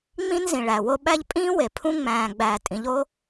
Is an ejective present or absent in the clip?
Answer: present